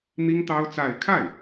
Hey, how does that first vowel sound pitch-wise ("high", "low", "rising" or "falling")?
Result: high